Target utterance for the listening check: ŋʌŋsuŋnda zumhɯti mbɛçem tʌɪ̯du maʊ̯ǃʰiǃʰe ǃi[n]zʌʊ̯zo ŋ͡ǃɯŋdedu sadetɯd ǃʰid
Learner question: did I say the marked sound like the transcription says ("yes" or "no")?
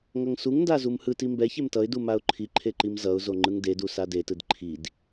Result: no